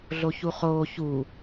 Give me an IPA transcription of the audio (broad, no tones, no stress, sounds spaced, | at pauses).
ɮ o ç u χ oː ç u